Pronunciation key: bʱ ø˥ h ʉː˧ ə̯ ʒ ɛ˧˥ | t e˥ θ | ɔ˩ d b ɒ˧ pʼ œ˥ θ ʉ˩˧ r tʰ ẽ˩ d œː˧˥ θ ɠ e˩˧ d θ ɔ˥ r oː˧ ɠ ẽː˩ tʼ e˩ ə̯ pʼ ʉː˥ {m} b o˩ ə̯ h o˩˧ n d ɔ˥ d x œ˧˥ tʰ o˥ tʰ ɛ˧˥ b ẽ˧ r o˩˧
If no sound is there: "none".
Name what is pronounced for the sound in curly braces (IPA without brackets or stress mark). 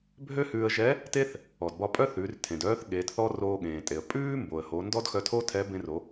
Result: m